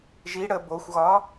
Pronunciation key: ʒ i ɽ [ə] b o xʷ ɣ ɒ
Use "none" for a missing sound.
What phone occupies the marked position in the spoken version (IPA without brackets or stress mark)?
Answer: ə